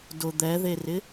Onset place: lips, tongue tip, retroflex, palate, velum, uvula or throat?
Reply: tongue tip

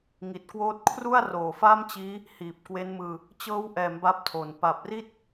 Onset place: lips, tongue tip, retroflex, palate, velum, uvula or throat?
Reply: velum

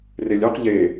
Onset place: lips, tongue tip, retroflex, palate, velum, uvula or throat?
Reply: tongue tip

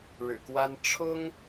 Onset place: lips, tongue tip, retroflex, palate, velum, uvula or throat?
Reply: retroflex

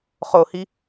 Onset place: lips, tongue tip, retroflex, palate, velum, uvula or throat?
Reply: uvula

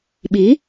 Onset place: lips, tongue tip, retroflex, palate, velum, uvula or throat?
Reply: lips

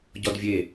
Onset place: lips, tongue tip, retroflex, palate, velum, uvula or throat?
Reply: palate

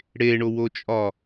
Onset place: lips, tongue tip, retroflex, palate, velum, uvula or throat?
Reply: retroflex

